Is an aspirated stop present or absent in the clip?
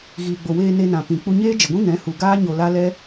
absent